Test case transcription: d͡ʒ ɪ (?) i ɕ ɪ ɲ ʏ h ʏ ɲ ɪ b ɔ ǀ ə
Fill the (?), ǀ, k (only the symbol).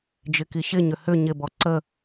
k